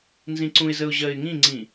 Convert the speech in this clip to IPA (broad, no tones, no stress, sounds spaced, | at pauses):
n z ĩ ǀ ũ ɪ̯ z ə ʊ̯ ʑ ɜ ɪ̯ ŋ ĩ ŋ͡ǀ ĩ